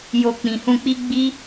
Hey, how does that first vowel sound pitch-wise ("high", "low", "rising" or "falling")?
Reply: low